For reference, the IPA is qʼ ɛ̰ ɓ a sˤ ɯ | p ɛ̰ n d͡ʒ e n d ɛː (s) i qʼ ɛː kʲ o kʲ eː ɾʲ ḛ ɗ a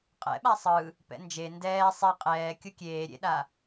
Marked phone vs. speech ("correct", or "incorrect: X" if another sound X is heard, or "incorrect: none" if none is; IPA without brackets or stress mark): incorrect: sˤ